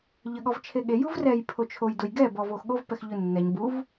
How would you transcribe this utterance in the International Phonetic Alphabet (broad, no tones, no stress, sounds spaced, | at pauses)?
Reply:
ʎ ə ɠ ɔ v t͡ʃʰ e ɠ e j u v r ɛ j pʰ o t͡ʃʰ o j d ʊ j ɡ ɛ b ɔ v o x ɠ o v p ɛ x ʎ ʊ nː ɛ ɲ b u v